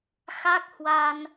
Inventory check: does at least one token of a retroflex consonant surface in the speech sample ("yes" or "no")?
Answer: no